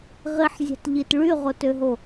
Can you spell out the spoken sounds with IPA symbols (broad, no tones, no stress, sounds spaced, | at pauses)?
ʁ i ħ zʲ ɑ̤ t ʎ i t ɭ y ʁ o t ø ɦ o